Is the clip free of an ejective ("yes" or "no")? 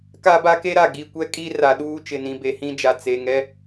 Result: no